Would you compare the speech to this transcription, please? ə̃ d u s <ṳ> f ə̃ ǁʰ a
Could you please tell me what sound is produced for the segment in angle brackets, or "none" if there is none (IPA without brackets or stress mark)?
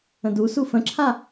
u